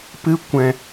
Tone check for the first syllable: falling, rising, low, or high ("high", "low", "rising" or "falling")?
high